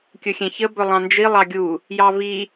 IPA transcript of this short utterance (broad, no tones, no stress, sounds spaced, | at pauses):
kʲ ɵ xʲ ɛ̃ ç ə b ɵ lˠ ɑ̃ n d͡ʒ i lˠ ɑ ɡʲ u | j ɑ v i